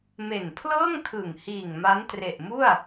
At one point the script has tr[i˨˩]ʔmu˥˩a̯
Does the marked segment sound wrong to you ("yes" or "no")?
yes